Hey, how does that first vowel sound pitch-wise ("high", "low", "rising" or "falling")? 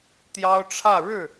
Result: high